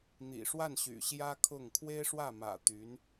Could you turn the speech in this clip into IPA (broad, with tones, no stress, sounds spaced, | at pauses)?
n̪ ḭ˨˩ ʂ w a˥˩ n ɕ y̰˨˩ ɕ j ä˥ kʰ ʊ˥˩ ŋ kʰ w e˥ ɪ̯ ʂ w ä˥˩ m ä̰˨˩ t̪ y˧˥ n